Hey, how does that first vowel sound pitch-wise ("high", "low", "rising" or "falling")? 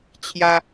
high